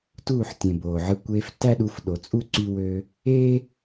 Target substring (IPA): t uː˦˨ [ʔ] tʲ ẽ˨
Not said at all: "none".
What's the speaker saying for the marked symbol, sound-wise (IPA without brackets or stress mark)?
ħ